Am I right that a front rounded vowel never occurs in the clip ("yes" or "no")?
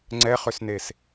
no